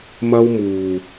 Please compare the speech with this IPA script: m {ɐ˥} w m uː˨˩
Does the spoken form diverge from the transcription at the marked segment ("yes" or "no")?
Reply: no